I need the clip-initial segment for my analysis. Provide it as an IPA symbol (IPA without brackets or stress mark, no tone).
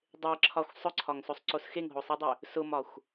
dˤ